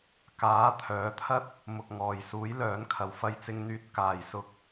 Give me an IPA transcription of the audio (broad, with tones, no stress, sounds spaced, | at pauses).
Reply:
k aː˨˥ t̪ʰ œː˨˥ t̪ʰ ɐ˥ t̚ | m ʊ˧ k̚ ŋ ɔː˨ j s uː˨˥ j l œː˨˥ n kʰ ɐ˨ w f ɐ˧ j t͡s ɪ˧ ŋ n̪ yː˧ t̚ k aː˧ j s ʊ˥ k̚